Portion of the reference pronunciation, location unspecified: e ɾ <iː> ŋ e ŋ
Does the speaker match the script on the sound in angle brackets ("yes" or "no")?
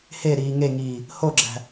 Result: yes